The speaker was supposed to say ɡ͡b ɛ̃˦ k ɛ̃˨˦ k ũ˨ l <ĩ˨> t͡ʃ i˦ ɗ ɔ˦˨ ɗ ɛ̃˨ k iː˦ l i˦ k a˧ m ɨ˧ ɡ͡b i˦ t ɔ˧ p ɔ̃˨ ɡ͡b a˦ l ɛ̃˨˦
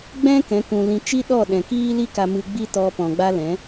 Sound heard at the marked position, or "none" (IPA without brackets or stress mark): ĩ˨